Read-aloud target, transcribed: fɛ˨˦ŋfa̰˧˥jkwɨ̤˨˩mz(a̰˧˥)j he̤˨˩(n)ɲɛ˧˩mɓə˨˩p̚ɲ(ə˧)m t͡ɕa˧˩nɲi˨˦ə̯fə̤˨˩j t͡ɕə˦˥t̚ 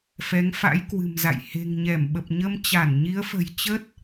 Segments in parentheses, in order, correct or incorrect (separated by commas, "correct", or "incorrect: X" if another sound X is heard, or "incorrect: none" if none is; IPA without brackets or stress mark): incorrect: a̰˧˨, incorrect: ŋ, correct